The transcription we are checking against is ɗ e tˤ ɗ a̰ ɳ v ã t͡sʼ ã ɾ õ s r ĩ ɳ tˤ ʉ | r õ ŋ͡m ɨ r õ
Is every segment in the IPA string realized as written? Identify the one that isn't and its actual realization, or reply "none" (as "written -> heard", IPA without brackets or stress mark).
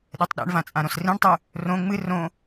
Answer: none